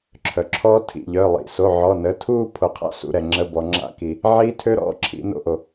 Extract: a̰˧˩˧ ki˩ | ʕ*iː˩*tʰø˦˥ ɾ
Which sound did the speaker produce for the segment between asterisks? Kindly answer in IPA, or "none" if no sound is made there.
iː˦˥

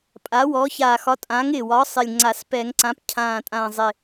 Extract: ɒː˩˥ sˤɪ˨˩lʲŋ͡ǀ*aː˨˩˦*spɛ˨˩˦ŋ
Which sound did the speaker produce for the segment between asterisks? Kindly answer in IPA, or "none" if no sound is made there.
a˨˩˦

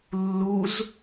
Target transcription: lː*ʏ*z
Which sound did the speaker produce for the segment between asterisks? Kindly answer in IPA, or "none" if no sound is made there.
u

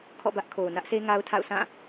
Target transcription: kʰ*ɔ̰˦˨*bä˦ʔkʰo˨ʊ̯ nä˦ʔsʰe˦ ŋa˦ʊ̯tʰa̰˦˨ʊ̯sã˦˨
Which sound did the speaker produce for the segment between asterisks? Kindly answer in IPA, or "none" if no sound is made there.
ɔ̰˦˨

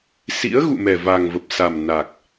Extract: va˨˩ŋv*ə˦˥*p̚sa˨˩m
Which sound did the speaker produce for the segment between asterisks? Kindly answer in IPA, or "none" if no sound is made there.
ə˨˩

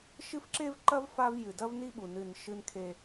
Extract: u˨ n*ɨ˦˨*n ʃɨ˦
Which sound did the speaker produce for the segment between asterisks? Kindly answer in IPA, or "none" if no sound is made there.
ɨ˦˨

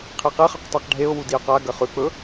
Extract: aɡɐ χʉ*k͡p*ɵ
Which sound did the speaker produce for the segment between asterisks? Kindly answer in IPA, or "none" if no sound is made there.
k͡p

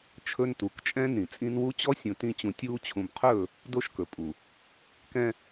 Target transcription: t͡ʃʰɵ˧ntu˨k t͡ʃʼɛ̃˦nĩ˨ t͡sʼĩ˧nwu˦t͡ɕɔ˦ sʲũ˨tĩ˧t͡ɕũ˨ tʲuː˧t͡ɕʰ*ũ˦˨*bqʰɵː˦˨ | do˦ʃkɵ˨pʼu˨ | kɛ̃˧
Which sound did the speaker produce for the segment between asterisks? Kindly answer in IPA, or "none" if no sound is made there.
ũ˨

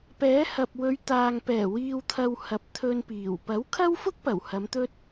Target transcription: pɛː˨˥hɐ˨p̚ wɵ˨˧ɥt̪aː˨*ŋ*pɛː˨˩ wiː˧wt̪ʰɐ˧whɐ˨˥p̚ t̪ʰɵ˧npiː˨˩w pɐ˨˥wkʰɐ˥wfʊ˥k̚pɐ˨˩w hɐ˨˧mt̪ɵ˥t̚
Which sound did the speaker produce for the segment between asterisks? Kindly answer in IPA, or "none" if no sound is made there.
ŋ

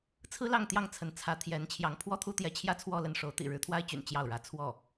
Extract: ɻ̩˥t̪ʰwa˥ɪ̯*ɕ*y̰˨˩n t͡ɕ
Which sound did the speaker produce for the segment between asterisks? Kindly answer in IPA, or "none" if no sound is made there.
t͡ɕ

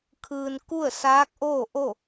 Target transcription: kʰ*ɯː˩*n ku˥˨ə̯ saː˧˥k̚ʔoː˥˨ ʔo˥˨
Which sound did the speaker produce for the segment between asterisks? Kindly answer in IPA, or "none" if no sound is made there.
ɯː˩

